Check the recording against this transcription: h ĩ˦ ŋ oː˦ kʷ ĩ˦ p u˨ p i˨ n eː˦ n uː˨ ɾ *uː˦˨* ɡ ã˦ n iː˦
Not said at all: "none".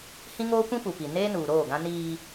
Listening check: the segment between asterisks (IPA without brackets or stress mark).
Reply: oː˦˨